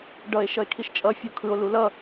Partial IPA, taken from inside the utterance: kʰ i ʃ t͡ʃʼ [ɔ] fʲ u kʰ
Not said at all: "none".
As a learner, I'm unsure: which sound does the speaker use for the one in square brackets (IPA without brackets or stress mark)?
ʌ